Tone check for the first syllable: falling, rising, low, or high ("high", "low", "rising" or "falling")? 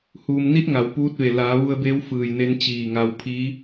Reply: low